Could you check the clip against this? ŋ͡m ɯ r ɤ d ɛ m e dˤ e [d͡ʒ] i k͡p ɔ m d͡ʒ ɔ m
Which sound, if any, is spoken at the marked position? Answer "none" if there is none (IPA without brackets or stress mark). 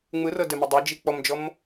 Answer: d͡ʒ